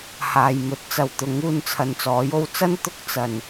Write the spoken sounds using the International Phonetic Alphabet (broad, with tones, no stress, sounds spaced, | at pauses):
h aː˨ j m ɵ˨˥ t̚ t͡s ɐ˨ w t̪ ʊ˨˥ ŋ uː˧ n t͡sʰ ɐ˨ n t͡s ɔː˨˥ j o˧ w t͡s ɐ˥ n t̪ ʊ˧ k̚ t͡s ɐ˨˩ n